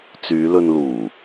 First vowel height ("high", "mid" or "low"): high